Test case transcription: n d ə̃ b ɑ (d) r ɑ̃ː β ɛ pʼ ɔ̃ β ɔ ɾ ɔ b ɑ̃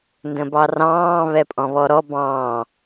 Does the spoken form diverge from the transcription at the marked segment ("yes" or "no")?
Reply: yes